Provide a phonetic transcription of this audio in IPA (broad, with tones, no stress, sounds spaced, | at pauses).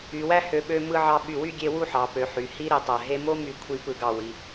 y˩˧ w æ˥ h ø˩˧ ɓ ø˧ m ɯ˧ ʕ ɑ˧ ɓ y˧˩ w y˥˧ ɡʲ e˧ w u˥˧ ħ ɑ˩˧ p ø˩˧ ħ y˩˧ h i˥ ɾ i˧˩ tˤ æ˧˩ ɦ e˥ m o˥ m y˧˩ kʷʰ i˧ p ɯ˧˩ ɡ ɑ˧˩ w i˩˧